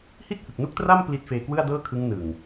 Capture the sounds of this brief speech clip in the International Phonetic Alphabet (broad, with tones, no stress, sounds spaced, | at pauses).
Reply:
h i˥˩ t̚ h ɯ˨˩ k̚ n u˥˩ k̚ t r a˥˩ m p l i˦˥ t̚ f eː˧ k w ɯ˥˩ a̯ d ɤː˥˩ kʰ ɯ˦˥ ŋ n ɯ˨˩ ŋ